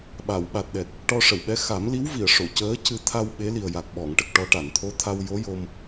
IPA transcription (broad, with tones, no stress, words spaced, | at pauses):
ɓa˨˩˨w ɓa˨˩t̚ɗɛ˨˩t̚ | ʈɔ˧ʂə˨˩˨wɓɛ˧˥ xa˨˩˦mli˧˥w vi˨˩˨ə̯ ʂo˨˩˨cəː˧˥ cɨ˧ t̪ʰa˧w ɓe˧˥li˨˩ə̯ ja˨˩k̚ɓɔ˨˩˨ŋʈə˨˩k̚ʈɔ˧ ʈa˨˩˨nt̪ʰo˧˥t̪ʰa˧w jo˧˥jo˧m